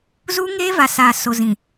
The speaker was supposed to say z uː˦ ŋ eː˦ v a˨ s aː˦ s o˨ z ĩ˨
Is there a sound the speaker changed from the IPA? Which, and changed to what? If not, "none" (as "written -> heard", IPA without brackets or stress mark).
aː˦ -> aː˨